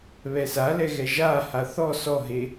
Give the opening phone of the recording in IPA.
β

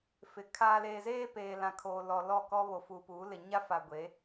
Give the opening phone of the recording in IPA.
f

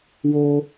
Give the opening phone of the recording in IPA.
w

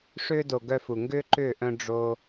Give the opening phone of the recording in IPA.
ʂ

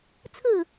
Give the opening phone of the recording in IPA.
t͡sʰ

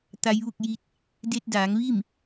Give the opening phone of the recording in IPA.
t̪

